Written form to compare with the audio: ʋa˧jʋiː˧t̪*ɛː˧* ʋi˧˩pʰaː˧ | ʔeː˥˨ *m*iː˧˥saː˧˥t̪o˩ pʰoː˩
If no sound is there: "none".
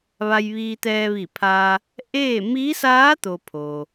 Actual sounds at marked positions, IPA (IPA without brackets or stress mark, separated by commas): ɛː˧, m